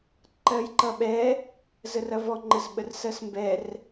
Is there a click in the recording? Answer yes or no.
yes